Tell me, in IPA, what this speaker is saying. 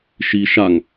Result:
ʃi ʃaŋ

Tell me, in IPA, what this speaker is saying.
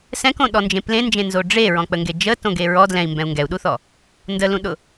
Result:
sɛ̃kõ ɗɔnd͡ʒẽplẽnd͡ʒẽ nzoɖ͡ʐeɹɔ̃ k͡pəŋɡed͡ʒətõ ɡeɹɔ dlɛ̃i̯ mbɛ̃u̯ŋɡɛu̯ɗuθɔ | ndəlũɗʊ

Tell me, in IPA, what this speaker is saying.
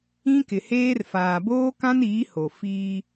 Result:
ĩ˦kɪ˨heː˦r faː˨boː˦kã˦niː˨˦ ho˨ fiː˦

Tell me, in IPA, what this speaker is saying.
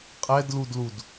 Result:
qʼɛdludlud

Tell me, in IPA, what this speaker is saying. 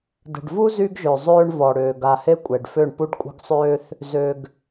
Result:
də̤˨ɖvu˦ zy˦ɡʒø˨zˤøː˦ɳ vɔ˨ɽøː˨ ɡa˨he˦ kʷʼɛ˨ɖfø˦˨ɳ pu˦ɖkʷʼə̤˦ɡsˤøː˦θ | zø˨ɡ

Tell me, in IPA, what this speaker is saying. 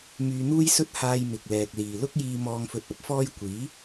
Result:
myː˧n̪uː˥jsɵ˥t̚ haː˧jmɪ˨k̚lɛː˨k̚ liː˨lʊ˥k̚jiː˧ mɔː˧ŋfɵ˧t̚ɐ˥p̚fɔː˥j kʷiː˨˥

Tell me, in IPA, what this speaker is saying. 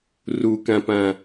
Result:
rukãpã

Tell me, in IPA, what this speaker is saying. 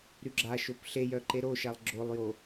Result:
ɾyɡ͡ǁaʃop ɬejœǃe ɾoʃalˠ ɡ͡ǁolˠjo

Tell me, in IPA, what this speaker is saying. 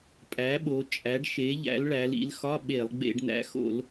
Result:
pʼæ˩˥ɓo˩˧ t͡ʃʼæ˩˥ɖʃe˩˥ʎæ̰˩˥l ɭæ˩˧lḭ˩˧lxɒ˧˥˧ ɓe˧˩˧lˠ ɡ͡bḛ˧˩˧ɖnæ̰˩˥xo̰˧˩˧l

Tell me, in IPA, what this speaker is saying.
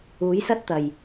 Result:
uː˨˥jsɐ˥t̚t̪ɐ˨˩j

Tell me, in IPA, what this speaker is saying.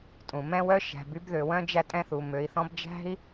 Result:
tʼũ˩mɛ̃˥wœ˥ ʃæ̤˨by˦bðø˨wœ̃˥ d͡ʒæ˦tʼɛ̃˦θu˩ mø˨i̯θɔ̃˦bd͡ʒæ̤˥i̯

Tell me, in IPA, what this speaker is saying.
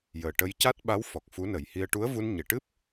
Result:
jəː˨˩ʈə˧j ca˦˥t̚ɓa˧˥w fɔ˨˩k̚fu˧˥nə˨˩˦jhi˧ə̯ ʈu˧˥ə̯vu˧n ɲe˨˩˨ʈɨ˦˥p̚

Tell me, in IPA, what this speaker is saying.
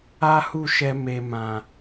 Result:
a˦hu˦˨ʃɛ˧ me˨mã˨

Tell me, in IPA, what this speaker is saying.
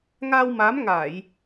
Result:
ŋa˧wma˨˦mŋa˧˩˨j

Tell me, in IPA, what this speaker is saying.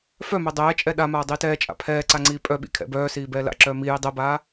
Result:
fœmœ dˤɛːt͡ʃʼɛ ɗamaː dˤiːtɛːt͡ʃʼa̰ pʰɛː ǀaŋ͡ǀiːpʼœɓḭ kʰɛ̰bœːsiː bɛːla̰ǁœː miji dˤɛbaː

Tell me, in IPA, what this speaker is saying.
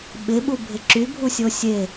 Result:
ɓɪɓubʱɪ ǁybʱusʲo sʲe

